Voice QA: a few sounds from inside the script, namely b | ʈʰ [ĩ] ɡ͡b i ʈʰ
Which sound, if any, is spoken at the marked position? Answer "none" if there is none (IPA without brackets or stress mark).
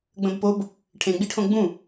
ẽ